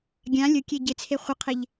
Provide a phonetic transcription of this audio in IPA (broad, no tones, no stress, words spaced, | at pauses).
ɡʲã lʲʊkʲe ɟɪt͡sʰe χʷɪqʰɪʎ